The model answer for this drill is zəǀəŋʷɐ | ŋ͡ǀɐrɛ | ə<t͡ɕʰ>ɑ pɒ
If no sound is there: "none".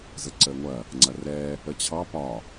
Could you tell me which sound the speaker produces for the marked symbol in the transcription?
t͡ɕʰ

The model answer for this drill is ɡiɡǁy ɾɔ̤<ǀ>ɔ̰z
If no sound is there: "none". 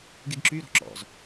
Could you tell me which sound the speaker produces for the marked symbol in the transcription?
ǁ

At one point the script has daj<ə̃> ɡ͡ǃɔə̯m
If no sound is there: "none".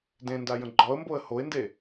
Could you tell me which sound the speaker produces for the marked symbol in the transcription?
ə̃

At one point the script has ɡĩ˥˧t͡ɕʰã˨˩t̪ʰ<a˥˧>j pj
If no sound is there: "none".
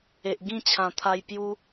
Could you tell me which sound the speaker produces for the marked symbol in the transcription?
a˧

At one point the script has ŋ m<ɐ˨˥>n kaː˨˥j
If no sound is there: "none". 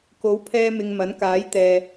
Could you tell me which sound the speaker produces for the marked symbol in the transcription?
ɐ˨˥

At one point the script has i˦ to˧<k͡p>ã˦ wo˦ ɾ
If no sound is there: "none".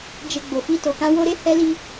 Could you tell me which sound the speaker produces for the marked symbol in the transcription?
k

